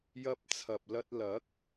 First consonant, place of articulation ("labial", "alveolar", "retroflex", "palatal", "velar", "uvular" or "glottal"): palatal